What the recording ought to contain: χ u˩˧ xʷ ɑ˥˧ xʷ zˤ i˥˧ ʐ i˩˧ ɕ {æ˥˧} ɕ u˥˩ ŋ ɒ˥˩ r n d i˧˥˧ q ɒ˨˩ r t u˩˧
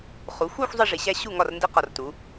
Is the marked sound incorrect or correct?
incorrect: æ˦˥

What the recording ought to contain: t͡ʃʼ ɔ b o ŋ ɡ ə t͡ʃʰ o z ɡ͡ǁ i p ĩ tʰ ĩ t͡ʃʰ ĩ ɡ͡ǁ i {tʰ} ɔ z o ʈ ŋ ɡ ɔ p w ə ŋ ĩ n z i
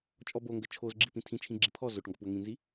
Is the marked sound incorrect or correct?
incorrect: pʰ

